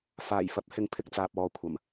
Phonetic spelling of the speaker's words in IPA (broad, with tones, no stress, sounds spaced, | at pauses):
f aː˨˩ j f ɐ˨˥ p̚ h ɪ˨˥ ŋ pʰ ɪ˨ k̚ t͡s aː˨ p̚ ɔː˨ kʷʰ ɐ˨˩ m